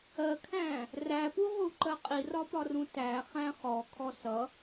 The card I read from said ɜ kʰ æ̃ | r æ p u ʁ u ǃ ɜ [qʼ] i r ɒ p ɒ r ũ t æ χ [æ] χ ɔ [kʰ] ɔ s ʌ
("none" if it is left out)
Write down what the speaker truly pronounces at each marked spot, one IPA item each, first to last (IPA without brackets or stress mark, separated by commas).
qʼ, æ̃, kʰ